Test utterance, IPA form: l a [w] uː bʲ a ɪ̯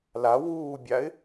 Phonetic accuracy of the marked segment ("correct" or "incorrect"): correct